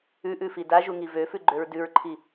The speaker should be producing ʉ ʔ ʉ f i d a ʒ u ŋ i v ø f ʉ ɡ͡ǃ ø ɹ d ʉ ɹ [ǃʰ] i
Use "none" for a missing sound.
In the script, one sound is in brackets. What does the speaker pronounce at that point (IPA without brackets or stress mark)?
ǃʰ